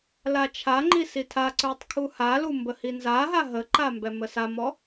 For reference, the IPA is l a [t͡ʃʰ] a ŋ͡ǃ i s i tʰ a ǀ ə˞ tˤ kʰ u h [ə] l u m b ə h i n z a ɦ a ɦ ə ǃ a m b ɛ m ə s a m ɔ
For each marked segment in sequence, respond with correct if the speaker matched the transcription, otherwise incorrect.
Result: correct, incorrect: a

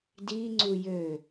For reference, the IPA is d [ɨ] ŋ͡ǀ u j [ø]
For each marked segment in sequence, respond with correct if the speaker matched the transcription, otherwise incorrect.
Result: incorrect: i, correct

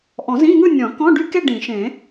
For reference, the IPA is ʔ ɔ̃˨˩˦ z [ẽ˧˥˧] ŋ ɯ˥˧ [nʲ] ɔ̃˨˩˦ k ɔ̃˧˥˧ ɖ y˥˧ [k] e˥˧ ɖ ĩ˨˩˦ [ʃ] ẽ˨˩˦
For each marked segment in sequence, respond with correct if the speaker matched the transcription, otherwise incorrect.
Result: incorrect: ĩ˧˥˧, correct, correct, correct

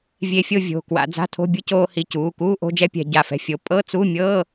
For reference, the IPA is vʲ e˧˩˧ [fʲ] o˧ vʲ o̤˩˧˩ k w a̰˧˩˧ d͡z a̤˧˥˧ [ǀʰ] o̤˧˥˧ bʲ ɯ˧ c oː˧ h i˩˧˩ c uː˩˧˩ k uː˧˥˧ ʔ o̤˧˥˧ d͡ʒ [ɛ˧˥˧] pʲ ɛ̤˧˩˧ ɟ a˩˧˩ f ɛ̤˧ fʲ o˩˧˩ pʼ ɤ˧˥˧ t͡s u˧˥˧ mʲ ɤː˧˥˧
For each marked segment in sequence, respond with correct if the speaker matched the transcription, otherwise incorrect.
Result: correct, incorrect: tʰ, correct

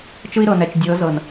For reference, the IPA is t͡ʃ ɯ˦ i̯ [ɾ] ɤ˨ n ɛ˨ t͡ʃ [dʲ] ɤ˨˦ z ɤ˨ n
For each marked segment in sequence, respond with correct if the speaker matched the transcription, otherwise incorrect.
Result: correct, correct

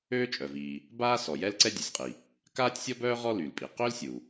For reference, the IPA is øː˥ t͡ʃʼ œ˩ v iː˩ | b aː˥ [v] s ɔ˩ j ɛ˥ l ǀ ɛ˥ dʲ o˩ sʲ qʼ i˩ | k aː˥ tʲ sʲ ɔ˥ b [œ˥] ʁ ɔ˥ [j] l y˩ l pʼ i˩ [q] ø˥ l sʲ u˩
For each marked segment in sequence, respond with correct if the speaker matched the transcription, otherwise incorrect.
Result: incorrect: none, incorrect: œː˥, incorrect: none, correct

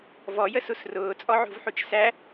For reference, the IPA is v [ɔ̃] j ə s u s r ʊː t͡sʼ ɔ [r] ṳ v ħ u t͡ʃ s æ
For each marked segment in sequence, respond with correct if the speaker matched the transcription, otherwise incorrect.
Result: incorrect: ɔ, incorrect: ʕ

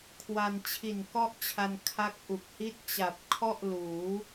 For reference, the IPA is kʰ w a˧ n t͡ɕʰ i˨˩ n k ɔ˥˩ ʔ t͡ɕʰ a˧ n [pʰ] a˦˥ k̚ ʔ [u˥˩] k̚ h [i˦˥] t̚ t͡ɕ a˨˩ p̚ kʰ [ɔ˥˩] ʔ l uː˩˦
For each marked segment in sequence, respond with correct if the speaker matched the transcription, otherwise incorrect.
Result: incorrect: kʰ, incorrect: u˨˩, incorrect: i˥˩, correct

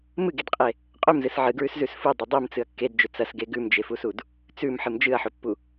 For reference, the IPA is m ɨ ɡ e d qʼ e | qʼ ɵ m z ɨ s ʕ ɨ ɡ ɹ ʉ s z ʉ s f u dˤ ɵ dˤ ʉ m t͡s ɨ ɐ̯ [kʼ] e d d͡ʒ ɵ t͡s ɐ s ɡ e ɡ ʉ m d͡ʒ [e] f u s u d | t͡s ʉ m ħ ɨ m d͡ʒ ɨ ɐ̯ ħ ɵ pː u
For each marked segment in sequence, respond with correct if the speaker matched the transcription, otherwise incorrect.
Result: incorrect: kː, correct

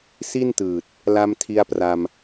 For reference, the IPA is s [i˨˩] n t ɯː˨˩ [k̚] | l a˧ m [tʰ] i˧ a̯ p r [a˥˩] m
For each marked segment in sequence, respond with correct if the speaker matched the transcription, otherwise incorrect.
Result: incorrect: i˥˩, incorrect: t̚, correct, incorrect: a˧

